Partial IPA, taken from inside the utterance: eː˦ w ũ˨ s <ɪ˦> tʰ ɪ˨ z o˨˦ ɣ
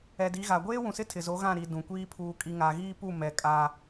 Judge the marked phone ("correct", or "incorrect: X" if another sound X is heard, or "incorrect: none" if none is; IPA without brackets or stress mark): correct